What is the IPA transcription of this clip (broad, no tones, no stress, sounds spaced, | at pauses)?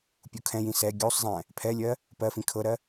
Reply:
pʲ u kʰ ɛ̃ j ĩ s ɛ ɡʲ u sˤ zˤ ɛ̃ | pʰ ɛ lʲ ɜ | p ɜ f ĩ kʰ ɤ ɾ ɜ